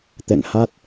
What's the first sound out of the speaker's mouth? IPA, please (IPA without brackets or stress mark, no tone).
t̪